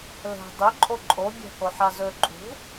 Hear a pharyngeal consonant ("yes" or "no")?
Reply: yes